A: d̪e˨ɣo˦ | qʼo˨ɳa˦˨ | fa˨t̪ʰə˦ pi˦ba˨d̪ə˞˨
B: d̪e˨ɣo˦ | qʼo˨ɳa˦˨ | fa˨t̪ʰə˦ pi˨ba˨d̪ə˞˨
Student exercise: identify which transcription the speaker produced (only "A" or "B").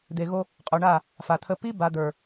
A